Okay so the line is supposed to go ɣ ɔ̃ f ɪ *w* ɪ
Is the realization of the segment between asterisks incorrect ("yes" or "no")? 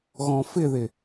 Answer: yes